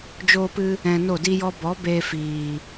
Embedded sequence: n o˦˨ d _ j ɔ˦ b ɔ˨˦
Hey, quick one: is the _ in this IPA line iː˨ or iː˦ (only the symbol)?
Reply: iː˦